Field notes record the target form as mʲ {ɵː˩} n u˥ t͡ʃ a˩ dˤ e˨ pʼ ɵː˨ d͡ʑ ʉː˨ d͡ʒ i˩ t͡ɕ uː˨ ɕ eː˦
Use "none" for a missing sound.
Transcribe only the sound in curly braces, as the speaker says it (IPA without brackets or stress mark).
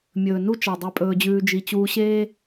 ɵː˩